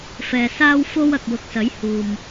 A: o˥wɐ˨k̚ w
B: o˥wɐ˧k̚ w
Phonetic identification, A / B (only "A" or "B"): B